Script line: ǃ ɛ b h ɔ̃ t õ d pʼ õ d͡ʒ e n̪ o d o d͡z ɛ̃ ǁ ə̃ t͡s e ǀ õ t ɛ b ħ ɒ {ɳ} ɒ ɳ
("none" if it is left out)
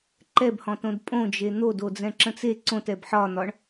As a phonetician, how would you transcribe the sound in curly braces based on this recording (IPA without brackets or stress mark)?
n̪